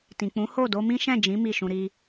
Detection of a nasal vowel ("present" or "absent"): present